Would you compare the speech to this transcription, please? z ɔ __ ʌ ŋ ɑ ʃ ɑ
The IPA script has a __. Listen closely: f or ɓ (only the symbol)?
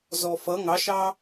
f